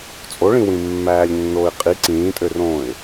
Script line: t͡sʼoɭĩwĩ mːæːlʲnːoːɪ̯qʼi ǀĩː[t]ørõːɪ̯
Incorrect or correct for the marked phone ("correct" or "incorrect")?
incorrect